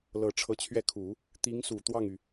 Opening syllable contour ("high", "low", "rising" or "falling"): low